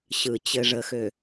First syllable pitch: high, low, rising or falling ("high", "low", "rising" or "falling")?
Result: low